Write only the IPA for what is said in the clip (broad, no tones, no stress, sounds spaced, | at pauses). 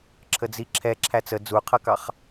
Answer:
ǁʰ ə d͡z i ǁʰ ɛ ǁʰ æ t͡s ə d͡z u qʰ ʌ k ɑ χ